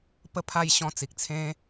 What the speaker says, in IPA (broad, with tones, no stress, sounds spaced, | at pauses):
p ə˥˧ pʰ a˥˧ j ɕ ɔ̃˧ t͡s i˨ k̚ t͡sʰ ẽ˦